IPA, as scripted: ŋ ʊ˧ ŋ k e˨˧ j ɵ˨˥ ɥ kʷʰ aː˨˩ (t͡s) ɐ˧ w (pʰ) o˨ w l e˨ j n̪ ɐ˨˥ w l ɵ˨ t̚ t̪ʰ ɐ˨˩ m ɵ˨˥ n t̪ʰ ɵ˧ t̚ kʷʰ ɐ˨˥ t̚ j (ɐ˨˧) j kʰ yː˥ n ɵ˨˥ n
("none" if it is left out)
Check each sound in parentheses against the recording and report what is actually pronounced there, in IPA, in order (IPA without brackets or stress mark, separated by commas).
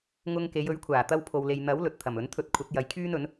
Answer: t̪, pʰ, ɐ˨˧